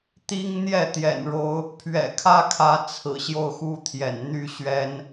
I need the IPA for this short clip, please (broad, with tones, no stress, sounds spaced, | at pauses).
t̪ i˦ ŋ n̪ j ɛ˥˨ t̪ j ɛ̰˨˩ n ɻ o˨˦ ʊ̯ | pʰ ɥ ɛ̰˨˩ kʰ ä˥˨ kʰ ä˨˦ t͡sʰ ɹ̩˨˩ ɕ j o˥˨ ʊ̯ x u˦ t̪ʰ j ɛ̰˨˩ n n̪ y˥˨ ɕ ɥ ɛ˦ n